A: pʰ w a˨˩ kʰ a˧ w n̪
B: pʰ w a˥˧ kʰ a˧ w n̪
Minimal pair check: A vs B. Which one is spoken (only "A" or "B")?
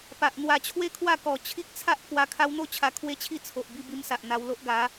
A